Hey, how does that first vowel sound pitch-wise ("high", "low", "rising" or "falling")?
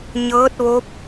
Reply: rising